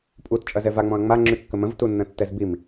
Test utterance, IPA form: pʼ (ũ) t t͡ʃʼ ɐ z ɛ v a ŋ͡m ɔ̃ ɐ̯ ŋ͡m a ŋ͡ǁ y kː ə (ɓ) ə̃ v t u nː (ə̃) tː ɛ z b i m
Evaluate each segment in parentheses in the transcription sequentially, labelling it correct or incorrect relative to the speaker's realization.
incorrect: u, incorrect: m, correct

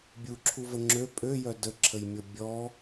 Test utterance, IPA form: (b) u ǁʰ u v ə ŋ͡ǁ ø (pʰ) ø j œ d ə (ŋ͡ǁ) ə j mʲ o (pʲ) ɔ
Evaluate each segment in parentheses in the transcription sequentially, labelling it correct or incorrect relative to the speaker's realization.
incorrect: bʲ, incorrect: pʼ, incorrect: ǁʰ, incorrect: bʲ

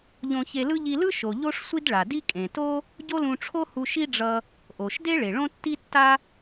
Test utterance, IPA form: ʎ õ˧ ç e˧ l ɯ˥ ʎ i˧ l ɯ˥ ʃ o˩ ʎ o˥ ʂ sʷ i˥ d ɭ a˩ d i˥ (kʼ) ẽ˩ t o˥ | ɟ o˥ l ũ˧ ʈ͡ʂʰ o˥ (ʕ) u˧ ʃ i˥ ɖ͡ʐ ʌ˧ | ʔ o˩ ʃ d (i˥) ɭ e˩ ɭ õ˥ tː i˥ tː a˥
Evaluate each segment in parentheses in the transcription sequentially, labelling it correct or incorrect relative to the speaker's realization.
correct, incorrect: h, incorrect: e˥

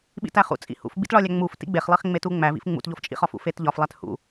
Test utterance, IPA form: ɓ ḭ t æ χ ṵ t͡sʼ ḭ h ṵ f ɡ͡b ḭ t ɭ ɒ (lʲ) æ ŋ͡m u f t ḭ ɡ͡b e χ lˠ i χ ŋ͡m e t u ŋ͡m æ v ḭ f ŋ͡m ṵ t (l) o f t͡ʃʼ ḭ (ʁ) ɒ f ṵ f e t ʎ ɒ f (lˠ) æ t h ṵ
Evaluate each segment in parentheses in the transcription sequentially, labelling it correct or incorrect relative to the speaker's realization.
correct, incorrect: ʎ, incorrect: χ, correct

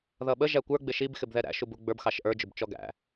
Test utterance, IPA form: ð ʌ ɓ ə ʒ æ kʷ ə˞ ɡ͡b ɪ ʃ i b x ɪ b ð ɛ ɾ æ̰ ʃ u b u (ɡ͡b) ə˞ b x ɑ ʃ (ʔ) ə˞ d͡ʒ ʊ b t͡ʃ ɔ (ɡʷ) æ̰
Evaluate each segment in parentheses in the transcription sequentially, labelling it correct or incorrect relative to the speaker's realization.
correct, correct, incorrect: ɡ

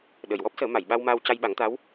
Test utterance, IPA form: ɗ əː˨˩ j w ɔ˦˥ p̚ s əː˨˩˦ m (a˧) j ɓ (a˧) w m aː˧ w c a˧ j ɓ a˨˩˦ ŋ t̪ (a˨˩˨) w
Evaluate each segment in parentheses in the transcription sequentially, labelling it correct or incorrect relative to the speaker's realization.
incorrect: a˨˩˨, correct, incorrect: a˧˥

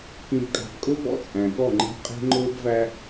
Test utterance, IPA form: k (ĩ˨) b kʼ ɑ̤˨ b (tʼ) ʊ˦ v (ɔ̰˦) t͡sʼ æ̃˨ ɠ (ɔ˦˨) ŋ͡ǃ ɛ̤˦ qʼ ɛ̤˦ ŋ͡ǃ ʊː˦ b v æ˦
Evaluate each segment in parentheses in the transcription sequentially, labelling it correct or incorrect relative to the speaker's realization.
correct, incorrect: kʼ, correct, correct

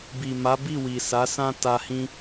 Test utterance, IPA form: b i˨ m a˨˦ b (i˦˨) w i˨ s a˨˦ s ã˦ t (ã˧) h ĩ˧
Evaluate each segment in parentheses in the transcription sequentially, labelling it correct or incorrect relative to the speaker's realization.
correct, incorrect: a˧

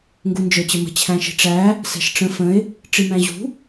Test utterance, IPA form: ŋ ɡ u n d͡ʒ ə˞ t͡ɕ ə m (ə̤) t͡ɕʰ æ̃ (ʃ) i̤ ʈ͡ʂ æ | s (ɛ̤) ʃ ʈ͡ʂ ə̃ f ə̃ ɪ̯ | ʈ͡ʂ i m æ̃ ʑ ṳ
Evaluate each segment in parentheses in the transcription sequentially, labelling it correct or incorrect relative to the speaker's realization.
correct, correct, correct

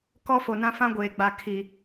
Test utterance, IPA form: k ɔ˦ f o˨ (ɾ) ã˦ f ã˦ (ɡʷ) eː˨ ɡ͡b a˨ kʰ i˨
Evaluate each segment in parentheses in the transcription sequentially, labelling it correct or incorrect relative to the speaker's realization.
incorrect: n, correct

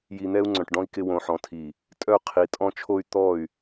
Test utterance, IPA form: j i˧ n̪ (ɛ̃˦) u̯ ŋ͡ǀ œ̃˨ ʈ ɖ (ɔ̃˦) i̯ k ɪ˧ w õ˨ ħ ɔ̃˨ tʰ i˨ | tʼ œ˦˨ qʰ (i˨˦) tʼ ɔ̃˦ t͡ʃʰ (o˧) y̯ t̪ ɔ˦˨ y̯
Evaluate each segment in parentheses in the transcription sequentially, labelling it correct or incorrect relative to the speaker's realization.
incorrect: ɛ˦, correct, correct, incorrect: o˦

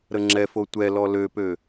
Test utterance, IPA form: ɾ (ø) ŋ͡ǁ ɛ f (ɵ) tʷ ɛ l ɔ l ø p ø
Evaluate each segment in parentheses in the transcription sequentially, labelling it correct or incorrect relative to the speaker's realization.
incorrect: ə, incorrect: o

